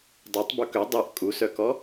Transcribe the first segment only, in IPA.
dˤ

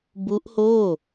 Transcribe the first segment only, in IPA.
b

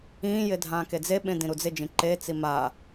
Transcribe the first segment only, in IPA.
ĩː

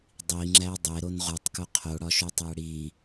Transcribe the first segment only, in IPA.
dˤ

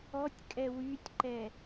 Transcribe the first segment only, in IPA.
ɔ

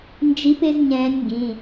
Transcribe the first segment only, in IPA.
n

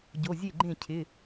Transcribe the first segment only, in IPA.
ɟ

